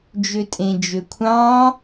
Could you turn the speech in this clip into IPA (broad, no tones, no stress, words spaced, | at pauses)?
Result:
d͡ʒøtʼẽd͡ʒøkʷʰɑ̃